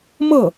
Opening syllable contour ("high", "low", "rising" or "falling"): falling